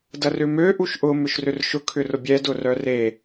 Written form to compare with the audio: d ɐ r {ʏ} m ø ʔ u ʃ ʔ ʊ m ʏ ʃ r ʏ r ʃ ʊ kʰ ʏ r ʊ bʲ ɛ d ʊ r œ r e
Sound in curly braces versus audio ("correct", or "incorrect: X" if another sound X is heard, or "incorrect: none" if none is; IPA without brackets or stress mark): correct